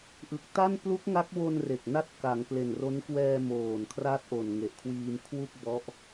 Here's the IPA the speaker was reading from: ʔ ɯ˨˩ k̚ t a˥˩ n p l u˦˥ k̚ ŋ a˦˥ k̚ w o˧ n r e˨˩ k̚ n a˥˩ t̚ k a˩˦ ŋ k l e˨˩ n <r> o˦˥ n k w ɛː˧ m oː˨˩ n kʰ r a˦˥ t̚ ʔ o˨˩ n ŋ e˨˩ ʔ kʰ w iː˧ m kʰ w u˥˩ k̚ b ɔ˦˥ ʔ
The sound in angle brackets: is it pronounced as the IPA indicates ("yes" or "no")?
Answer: yes